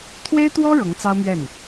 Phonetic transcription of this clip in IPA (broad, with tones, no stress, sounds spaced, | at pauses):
t̪ʰ w e˥ ɪ̯ t̪ w ɔ˥ ɻ ɤ˧˥ ŋ t͡s ɑ˥ ʊ̯ m ɥ ɛ˥˩ n